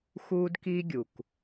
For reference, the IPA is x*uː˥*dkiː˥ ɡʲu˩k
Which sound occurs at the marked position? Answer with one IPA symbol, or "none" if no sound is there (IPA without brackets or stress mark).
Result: uː˥